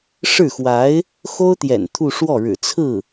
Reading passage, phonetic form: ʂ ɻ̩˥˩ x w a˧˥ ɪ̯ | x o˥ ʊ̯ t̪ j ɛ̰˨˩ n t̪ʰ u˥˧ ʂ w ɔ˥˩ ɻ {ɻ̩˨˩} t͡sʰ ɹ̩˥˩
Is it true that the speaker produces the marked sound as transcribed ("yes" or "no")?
yes